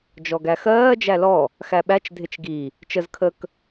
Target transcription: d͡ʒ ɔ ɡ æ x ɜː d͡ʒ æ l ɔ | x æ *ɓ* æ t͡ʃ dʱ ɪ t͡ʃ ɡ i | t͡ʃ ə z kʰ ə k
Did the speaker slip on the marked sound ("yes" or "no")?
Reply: no